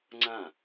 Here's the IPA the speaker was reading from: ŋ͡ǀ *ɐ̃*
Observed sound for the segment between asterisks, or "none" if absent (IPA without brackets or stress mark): ã